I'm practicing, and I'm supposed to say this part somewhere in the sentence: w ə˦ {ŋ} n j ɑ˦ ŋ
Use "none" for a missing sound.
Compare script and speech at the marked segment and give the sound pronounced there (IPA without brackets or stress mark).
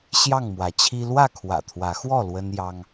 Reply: none